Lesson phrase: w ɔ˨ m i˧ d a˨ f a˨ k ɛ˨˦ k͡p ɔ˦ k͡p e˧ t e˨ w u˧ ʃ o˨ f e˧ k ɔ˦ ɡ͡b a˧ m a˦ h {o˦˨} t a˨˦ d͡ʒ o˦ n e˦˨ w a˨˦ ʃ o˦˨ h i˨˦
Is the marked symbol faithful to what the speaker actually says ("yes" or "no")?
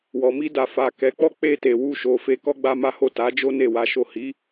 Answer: yes